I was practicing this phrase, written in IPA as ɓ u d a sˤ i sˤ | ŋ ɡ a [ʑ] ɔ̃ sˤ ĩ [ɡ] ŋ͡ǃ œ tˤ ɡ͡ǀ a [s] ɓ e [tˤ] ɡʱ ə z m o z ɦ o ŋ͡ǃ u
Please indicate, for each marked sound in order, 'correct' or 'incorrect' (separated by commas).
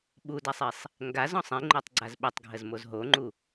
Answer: incorrect, incorrect, incorrect, correct